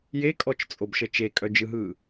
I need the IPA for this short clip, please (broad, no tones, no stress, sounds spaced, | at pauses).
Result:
j e kʼ ɔ t͡ʃ t͡sʼ o b ʃ ə t͡ʃ e kʼ œ d͡ʒ ɯ ɦ ɯː